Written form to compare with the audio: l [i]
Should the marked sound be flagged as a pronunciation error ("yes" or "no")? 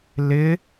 yes